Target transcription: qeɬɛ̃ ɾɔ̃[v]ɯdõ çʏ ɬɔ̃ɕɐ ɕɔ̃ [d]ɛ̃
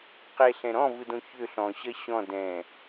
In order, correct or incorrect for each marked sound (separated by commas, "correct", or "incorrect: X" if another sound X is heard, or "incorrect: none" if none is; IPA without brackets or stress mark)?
correct, correct